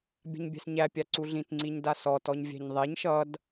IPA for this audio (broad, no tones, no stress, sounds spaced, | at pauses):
bʲ a̤ ɲ bʲ æ̤ s ɲ æ pʲ a ǀ u ɮ ĩ t ŋ͡ǀ i ɲ d a s ɔ t ɔ ɲ vʲ æ̤ ɲ ðˤ ɛ ɲ ʃ ʌ d